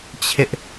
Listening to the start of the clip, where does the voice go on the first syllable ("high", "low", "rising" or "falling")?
high